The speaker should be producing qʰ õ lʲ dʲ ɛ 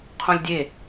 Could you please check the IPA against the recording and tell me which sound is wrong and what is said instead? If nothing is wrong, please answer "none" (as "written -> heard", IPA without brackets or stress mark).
ɛ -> e